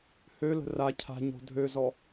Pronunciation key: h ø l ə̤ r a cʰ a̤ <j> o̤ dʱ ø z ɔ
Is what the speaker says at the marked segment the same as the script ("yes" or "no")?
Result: no